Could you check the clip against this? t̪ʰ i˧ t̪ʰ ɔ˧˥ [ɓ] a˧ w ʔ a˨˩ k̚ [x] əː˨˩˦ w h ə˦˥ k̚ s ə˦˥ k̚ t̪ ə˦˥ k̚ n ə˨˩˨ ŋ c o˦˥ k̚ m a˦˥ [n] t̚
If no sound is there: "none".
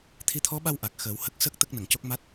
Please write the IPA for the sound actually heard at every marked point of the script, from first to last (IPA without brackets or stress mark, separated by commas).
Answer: ɓ, x, none